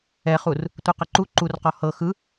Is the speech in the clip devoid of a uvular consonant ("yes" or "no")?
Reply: no